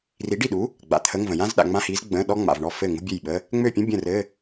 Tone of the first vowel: rising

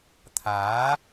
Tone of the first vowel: rising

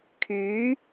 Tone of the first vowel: rising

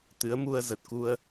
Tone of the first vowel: rising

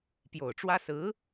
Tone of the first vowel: low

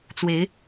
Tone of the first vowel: rising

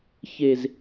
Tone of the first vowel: low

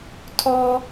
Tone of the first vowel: low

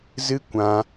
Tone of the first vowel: high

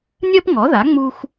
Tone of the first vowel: high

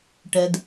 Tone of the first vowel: low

